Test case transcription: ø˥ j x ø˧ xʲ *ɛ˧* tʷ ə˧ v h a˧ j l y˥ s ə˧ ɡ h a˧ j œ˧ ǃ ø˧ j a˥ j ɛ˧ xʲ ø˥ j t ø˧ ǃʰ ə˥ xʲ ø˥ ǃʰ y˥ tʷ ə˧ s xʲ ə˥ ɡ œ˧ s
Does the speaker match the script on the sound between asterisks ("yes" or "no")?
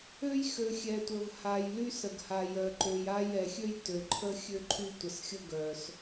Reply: yes